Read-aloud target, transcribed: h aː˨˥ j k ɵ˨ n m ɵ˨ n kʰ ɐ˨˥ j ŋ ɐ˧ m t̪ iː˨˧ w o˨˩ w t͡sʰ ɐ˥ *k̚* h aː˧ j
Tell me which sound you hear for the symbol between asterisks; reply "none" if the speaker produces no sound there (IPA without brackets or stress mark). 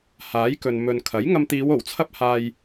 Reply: p̚